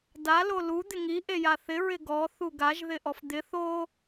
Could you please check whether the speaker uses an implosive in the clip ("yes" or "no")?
no